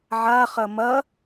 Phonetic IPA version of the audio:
ʕa χɐmɐ

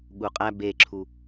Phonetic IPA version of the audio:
ɠuqʼæ beǁʰu

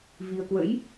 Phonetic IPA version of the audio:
vi˧ə̯ kwə̰˧˥j

